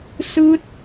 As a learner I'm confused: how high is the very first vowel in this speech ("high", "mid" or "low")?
high